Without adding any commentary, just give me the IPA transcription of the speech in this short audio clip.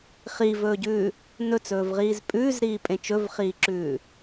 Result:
χ i v ɵː ɟ ʉː | n ɵ t͡s ɵː v ʁ iː z pʼ ʉː z ɾ iː pʼ ẽ t͡ʃ ɵ v χ iː ǁ ʉː

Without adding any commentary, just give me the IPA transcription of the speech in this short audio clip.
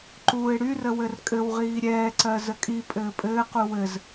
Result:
ǃ uː ɪ̯ ɽ y r ə w ɘ r kʼ ɘ w ʁ iː ɾʲ ɛː ǀ ɜ z ə kʼ i pʼ ɘː pʼ ɘː q u w ɘ z

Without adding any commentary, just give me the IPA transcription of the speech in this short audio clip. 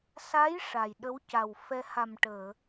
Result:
s a˧˥ j ʂ a˨˩ j ɗ ə˧˥ w c a˨˩ w f ɛ˧ h a˨˩ m ʈ əː˨˩˨

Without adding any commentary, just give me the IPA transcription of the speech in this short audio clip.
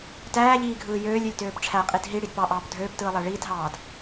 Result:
t æː ʎ iː ɡʱ ɯː j øː lʲ ø lʲ t øː p ʈ͡ʂʰ æ qʼ i d ɦ i ɽ i d p ɑ ʔ ɑː p dʱ øː p t ɯː lˠ æ ɭ iː t ɦ ɑː d

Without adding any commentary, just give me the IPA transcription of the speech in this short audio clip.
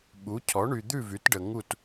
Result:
ɓ u˩˥ cʰ ɔ˩˥ ɳ y˨ d̪ ʉ˥˨ v y˩˥ t ɖ ə˨ ŋ u˥˨ t

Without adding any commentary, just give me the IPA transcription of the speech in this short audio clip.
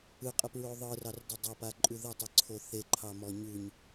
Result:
ɯ qʼ ə p ɹ o ðˤ ɯ r ɑ r d ə dˤ ɑ p a ǃʼ ʉ ð ə tˤ ɯ ǀʰ o θ e ǃʰ ɑ m ɔ ɲ ʉ ɲ

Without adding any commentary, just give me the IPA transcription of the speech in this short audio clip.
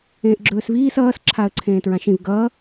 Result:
ẽː ʔ ɡ͡ǁ ɵː s v iː s ʌː s ǁʰ a ə̯ ǀʰ ẽː t ɹ ã ʃ ĩ v ɡ ʌ

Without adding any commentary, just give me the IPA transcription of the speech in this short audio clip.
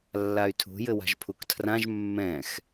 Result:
lː a y̯ tʰ ṳ j ɘ w a̤ ʒ pʰ u k tʰ r ã ʒ mː ɛ̃ x

